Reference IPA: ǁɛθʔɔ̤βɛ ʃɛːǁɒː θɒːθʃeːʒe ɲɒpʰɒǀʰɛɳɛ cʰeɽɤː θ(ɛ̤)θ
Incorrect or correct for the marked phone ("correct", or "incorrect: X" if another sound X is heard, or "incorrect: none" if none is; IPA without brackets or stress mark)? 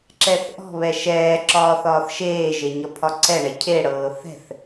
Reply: correct